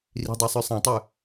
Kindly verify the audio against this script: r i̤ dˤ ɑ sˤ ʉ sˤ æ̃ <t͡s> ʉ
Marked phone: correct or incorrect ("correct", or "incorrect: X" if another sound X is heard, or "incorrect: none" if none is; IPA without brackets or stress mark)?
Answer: incorrect: tˤ